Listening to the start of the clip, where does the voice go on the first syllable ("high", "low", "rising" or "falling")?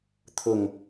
falling